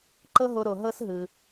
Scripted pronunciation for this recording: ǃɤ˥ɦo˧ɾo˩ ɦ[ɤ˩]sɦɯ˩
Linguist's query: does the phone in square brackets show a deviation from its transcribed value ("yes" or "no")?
yes